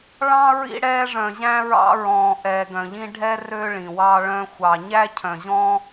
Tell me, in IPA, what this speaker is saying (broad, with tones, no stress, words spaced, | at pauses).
ɭɑ̃˧ ɹḭ˧ɽɛː˧ʐœ̃˨ʑæ̃˧ ɹɑ̰˧ɹɔ̃ː˨ ʔɛː˨ɡœ̃˨ʎĩ˧ ɖʱɛ˧ rø˧ɭĩ˨wɑ˧ ɭœ̃˧xʷɑ˨ ɲæ˧cʰœ̃˨ʑɔ̃˧